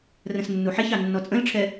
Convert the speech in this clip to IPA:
r ə̃ s nː u ħ e ç ɑ nː ɔ t͡sʼ ə̃ l ʈ͡ʂʰ ɛ

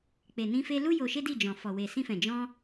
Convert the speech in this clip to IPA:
k͡p e˨ n ĩ˧ f e˧ l u˦ j o˧ ʃ e˦ d i˦˨ d͡ʒ ɔ̃˨ f ɔ˨ w e˨ s ĩ˧ f ɛ̃˨ d͡ʒ ɔ̃˧

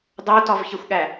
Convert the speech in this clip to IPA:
dˤ o t ɒ v ç e xʷ ɠ æ

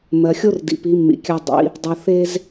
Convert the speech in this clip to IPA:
m ɜ˨ xʲ o˦ r d ḭ˨ p i˨˦ mː ḭ˨ kʲ a˦ dˤ ḭ˨˦ | dˤ o˨ θ e˦ z

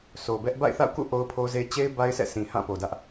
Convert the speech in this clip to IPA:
s o˨ b ɛ˦ ʔ b a̰˦˨ ɪ̯ θ a̰˦˨ ʊ̯ k ṵ˦˨ ʔ o˦ ʊ̯ pʰ o˦ z e˦ t͡ɕ e˦ ɪ̯ b a˦ ɪ̯ sʰ ɛ̰˦˨ sʰ ĩ˨ h ã˦˨ p o˨ d ä˦ ʔ

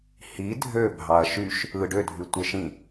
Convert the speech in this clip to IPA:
h i dʱ ø bʱ ɑ ɐ̯ ʃ y ʃ | ɯ ɖ ø dʱ y tʷ e ʃ ĩ

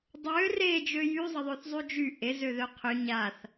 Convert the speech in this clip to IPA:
dˤ ø r e d͡ʒ ø j y zˤ ə ðˤ ø θ zˤ y d͡ʒ y ʔ e z ø ð œ qʰ ø ɲ a θ

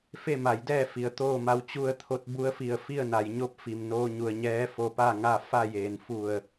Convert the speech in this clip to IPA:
f e˥˨ m a˩˧ j d ɛː˥˨ f i˩˧ ə̯ t̪ oː˥˨ m a˧˥ w t͡ɕ u˥˨ ə̯ t̪ʰ o˧˥ t̚ b u˧˥ ə̯ f i˧˩ ə̯ f i˥˨ ə̯ n a˩˧ j ɲ o˧˥ p̚ f i˩ m n oː˧ ɲ u˩ ə̯ ɲ ɛː˧˥ f o˧ p a˥˨ ŋ a˥˨ f a˥˨ j eː˩ n f u˧˩ ə̯

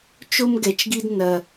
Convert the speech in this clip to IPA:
t͡ʃ o˦ m ɡ ɛ˨ t͡ʃ ɡ i˦ d n ɐ˦

